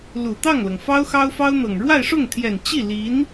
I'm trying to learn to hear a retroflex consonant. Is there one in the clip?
yes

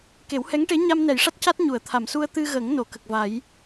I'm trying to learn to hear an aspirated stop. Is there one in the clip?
yes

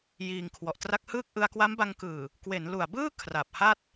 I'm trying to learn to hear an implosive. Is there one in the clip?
no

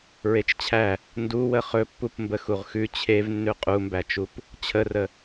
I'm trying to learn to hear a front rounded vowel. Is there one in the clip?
no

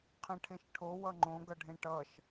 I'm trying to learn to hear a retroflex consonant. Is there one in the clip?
yes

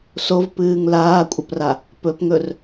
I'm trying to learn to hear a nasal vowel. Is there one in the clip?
no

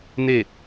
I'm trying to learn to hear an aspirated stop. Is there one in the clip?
no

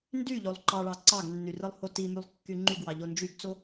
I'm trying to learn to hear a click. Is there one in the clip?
yes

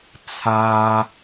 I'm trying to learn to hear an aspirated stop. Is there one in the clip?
yes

